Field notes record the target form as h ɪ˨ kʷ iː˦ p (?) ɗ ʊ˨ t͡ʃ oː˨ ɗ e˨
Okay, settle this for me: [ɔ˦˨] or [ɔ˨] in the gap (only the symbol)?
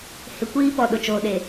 ɔ˨